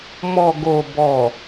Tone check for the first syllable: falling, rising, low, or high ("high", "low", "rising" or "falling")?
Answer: low